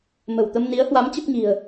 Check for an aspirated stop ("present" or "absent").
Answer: absent